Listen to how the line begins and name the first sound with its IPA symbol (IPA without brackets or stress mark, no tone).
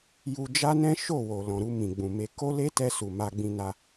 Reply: j